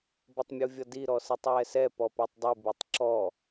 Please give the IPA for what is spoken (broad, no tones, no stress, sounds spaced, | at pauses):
b ʌ tˤ mʲ u vʲ ʌ d i ɾ ɔ s i tˤ w ɛ s ɛ p ɔ p æ tˤ dˤ i b i tˤ ǁ ɔ